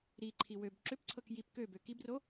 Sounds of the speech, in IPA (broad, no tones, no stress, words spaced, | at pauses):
ɾiǃʰi wøb ǁʏpǀʰɤk jip købø kibro